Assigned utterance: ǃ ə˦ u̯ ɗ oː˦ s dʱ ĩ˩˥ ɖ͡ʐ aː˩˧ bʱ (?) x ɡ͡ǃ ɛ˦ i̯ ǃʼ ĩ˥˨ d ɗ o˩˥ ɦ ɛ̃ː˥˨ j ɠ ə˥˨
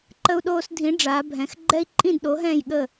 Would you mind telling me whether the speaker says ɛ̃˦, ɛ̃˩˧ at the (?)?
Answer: ɛ̃˩˧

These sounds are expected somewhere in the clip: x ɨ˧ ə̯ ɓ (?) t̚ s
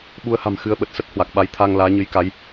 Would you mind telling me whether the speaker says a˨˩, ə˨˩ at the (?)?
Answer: ə˨˩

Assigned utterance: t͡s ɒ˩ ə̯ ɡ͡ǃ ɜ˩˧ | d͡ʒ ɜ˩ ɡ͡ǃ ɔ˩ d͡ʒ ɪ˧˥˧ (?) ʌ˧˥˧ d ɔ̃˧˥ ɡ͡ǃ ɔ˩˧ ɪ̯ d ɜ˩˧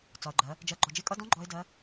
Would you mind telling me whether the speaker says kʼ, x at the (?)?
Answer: kʼ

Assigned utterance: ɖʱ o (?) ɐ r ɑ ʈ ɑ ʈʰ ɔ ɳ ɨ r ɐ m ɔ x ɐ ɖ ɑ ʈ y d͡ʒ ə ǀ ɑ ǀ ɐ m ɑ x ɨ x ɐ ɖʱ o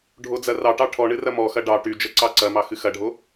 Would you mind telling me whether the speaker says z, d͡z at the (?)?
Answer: d͡z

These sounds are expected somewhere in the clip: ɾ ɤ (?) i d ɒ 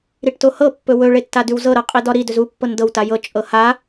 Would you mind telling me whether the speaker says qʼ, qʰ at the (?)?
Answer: qʼ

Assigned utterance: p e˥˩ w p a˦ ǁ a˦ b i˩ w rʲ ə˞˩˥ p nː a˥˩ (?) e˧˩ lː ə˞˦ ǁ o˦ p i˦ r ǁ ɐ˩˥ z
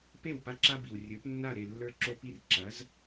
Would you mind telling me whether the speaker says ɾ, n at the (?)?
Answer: ɾ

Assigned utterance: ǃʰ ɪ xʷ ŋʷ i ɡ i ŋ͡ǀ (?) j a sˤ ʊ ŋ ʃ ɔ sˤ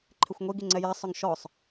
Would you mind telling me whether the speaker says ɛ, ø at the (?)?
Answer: ɛ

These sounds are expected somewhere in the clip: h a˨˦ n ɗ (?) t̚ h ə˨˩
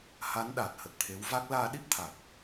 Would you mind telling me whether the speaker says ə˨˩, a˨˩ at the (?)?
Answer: a˨˩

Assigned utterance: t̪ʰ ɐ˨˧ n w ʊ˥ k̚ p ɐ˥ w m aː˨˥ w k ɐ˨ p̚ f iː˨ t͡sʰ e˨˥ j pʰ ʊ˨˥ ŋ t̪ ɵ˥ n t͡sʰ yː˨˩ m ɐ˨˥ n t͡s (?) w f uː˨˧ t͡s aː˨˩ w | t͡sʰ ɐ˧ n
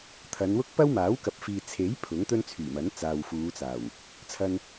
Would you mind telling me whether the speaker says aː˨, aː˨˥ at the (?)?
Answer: aː˨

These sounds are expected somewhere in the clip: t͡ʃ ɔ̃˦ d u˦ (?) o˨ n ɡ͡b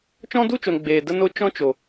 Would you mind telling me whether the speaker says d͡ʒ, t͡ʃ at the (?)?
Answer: t͡ʃ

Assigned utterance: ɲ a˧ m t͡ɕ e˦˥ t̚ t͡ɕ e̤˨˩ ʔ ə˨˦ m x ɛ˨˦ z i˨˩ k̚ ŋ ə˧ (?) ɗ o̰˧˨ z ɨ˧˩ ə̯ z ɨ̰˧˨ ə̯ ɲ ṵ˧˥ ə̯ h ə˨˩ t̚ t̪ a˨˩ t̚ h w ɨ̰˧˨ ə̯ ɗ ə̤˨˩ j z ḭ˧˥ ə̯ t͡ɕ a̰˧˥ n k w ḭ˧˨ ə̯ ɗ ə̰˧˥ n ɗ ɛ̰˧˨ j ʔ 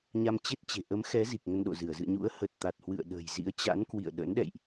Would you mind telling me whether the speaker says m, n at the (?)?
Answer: n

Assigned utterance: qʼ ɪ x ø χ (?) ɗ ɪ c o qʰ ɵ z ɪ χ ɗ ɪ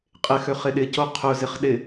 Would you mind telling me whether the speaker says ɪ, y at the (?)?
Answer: ɪ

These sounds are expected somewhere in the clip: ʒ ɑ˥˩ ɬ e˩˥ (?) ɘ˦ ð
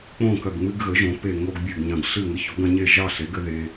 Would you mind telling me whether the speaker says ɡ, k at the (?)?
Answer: ɡ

